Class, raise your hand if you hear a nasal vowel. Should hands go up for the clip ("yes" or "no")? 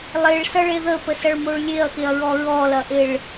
no